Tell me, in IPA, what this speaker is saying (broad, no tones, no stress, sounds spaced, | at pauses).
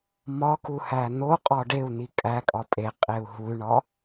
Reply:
m ɒ k u h æ n̪ o qʼ ɒ ɖ e u̯ n̪ i kʼ æ kʼ ɒ pʼ e qʼ e u̯ ɦ u y̯ ɳ ɒ